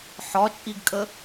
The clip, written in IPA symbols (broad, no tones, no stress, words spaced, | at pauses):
ħɒt͡ʃʼiɡkʼə